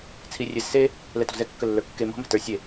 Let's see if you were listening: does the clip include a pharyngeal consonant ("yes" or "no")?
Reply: no